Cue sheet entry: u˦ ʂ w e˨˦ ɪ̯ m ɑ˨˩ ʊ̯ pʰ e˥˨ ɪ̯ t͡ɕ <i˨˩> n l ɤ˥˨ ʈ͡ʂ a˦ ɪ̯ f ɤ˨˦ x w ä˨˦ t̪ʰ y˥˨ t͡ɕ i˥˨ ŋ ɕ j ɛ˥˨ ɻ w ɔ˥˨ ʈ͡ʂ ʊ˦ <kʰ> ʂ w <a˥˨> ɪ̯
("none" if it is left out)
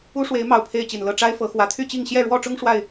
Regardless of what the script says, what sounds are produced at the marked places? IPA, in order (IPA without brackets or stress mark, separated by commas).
i˨˩, ŋ, a˥˨